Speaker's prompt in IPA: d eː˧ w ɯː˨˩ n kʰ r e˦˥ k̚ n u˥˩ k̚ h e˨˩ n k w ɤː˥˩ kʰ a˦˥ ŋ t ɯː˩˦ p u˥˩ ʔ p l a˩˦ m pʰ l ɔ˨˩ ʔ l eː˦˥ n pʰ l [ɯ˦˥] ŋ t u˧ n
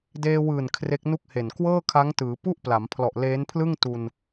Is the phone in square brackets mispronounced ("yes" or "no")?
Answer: yes